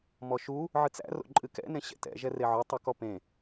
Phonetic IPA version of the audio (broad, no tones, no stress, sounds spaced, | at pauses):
m ɔ ʃ u | ʕ ɨ t͡s æ̰ r o̰ ǃʼ ɨ k ɛ̰ n ẽ ɕ ɛ̰ t ɛ̰ ʒ ɛ r e ʕ o tˤ u k ɔ p ẽ